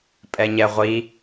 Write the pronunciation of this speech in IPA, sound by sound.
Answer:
pʼɛɲɛʁʷi

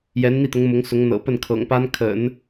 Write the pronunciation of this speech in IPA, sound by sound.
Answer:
jɛ˧˥nn̪i˥˩t̪ʊ˧˥ŋ mʊ˧˥ŋsʊ˧˥ŋ n̪ɤ̰˨˩pə˥˩n kʰɤ̰˨˩ŋpa˥nkʰə̰˨˩˦n

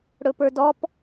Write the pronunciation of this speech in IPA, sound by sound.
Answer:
ɽɵpə˞dɔp

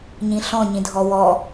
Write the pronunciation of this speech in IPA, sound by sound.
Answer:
ɲĩɬɔ̃ ɲĩdʱɔwɔ

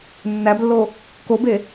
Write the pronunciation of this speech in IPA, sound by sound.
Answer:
nːæblːo | kobe

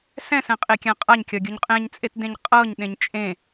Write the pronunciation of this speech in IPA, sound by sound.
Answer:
sɛ̃sɛ̃qʼekʲã qʼaɲkʲɒɡʲuɲ qʼẽɲt͡sʼetdẽɲ qʼɤɲɗẽɲ t͡ʃʼẽ

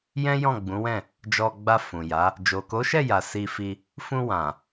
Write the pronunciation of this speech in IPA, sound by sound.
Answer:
jɛ̃˦jɔ̃˦˨ɡ͡bũ˨˦wɛ̃˦˨ | d͡ʒɔ˧ ɡ͡ba˧ fũ˨ja˨˦ | d͡ʒo˨ko˨˦ʃɛ˦˨ ja˨si˧fi˧ | fũ˧wã˨

